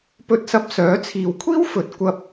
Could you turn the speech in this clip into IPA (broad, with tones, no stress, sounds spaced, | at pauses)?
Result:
p ɵ˧ t̚ s ɐ˧ p̚ s œː˨˥ t͡sʰ iː˨ w kʷʰ iː˥ w f ɵ˨˥ t̚ kʷ ɐ˧ p̚